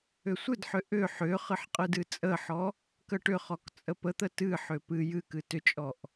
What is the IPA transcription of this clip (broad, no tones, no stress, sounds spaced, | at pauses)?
ʏ sʷ ɨ d ħ ʏ ʔ ʏ ħ ʏ χ ɨ ħ qʼ ɨ d ɨ t͡sʼ ə ħ ɔ | k ə ʈ ʏ χ ɔ k t͡sʼ ə p ə t̪ ə t ɨ ħ ʏ p ɨ j ɨ k ɨ t ʏ t͡ʃʼ ɔ ʔ